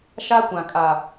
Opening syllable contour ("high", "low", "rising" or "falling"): high